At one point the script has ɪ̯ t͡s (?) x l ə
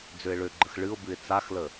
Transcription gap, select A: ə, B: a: B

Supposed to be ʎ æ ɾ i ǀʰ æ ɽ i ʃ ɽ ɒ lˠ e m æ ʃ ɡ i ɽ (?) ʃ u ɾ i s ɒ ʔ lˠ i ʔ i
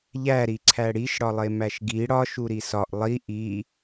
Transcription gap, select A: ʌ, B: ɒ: B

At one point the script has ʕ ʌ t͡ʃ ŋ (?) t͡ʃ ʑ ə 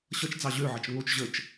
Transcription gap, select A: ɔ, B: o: B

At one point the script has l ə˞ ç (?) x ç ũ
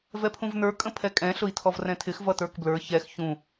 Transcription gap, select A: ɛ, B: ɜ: A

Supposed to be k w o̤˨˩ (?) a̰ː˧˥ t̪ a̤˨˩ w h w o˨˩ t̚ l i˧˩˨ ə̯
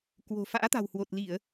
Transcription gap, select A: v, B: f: B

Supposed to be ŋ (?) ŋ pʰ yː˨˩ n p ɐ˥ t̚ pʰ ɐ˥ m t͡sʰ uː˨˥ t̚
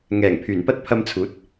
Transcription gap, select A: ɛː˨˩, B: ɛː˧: A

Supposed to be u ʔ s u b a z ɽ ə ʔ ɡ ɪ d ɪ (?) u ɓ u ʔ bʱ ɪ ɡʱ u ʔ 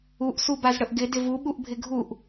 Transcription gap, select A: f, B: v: B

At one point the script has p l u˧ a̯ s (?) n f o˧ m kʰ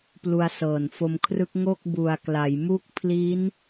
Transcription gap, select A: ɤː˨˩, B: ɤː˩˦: A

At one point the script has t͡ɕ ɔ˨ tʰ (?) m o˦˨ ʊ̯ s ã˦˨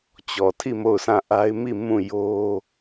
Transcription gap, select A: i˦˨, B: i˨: A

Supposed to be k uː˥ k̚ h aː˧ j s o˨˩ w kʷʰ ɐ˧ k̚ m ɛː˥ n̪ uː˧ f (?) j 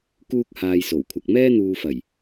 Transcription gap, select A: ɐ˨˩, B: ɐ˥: A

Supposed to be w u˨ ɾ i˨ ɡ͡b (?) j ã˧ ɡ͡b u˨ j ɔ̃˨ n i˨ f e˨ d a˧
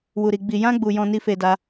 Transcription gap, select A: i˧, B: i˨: B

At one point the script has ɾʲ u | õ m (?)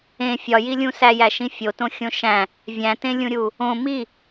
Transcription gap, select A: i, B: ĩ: A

